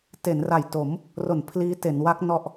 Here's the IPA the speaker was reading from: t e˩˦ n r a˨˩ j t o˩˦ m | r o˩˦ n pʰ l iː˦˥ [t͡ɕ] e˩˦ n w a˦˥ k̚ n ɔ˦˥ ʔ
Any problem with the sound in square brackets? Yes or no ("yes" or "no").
yes